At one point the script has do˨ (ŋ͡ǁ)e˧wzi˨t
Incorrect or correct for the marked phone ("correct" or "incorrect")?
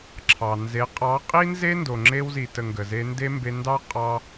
correct